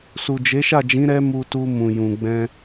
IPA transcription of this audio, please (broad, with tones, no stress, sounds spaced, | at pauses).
s u˨ d͡ʒ e˨˦ ʃ a˦˨ d͡ʒ ĩ˨˦ ɾ ɛ˦ m u˧ t u˧ m ũ˨ j ũ˨ ɡ͡b ɛ̃˧